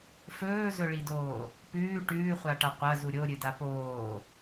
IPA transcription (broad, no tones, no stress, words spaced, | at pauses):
fɵːzɵɭidoː | pʉː ʈʉːχʷaʈa qʷɐzu ɾʲoɾʲɨda poː